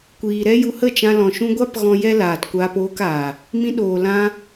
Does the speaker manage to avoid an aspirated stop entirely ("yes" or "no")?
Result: yes